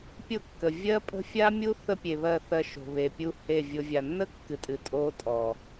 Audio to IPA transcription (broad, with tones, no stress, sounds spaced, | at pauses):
pʲ ʊ˦˨ kː ə˨ vʲ ɜ˦ pʼ ə̤˦ fʲ a˦ mʲ u˦ θ ə˦ pʲ e˨ β ɜ˦˨ θ ɜ˧ ʃ o̤˨ β e˨ pʲ u˧ h e˦˨ vʲ ʊ˧ vʲ a˨ nː ə˦ kː ɨ˨ tʼ ɨ˨ tʼ o˧ tʼ ɔ˨